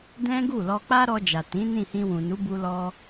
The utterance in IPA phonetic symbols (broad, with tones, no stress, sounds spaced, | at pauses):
d ɛ̃˦ ɡ u˦˨ l ɔ˧ k͡p a˦ ɾ ɔ˧ d͡ʒ a˨ t ĩ˨˦ n ĩ˦˨ h ĩ˧ w ũ˨ n u˨˦ b u˧ l ɔ˧